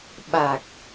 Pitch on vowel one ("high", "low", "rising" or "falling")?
low